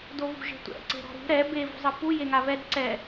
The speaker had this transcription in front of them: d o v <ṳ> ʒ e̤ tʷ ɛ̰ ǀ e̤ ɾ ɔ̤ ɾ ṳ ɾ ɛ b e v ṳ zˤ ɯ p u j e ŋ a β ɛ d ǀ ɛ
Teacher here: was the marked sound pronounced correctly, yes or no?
yes